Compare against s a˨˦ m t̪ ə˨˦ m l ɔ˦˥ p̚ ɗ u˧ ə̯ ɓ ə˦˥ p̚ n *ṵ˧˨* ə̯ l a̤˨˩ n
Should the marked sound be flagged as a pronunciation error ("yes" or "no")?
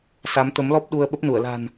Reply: yes